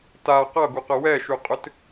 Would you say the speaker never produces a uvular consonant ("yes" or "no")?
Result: no